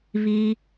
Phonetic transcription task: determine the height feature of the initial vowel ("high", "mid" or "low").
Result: high